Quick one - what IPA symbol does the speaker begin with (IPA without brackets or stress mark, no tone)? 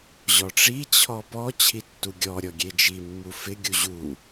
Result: ʑ